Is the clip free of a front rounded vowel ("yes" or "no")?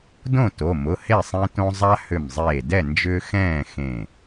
no